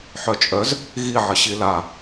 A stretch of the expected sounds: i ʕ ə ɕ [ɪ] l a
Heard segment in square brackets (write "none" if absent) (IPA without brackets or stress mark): i